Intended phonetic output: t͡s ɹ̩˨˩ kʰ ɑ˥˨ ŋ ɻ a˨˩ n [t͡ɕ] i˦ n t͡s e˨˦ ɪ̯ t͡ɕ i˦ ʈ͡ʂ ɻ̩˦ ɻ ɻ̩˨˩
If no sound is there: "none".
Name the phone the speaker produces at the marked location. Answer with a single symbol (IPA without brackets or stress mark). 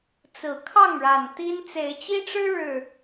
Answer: t̪